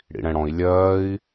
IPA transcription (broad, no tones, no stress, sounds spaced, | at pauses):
ɽ ḭ ɽ ɛ̃ ɽ ɔ̃ i̯ lʲ ɜː i̯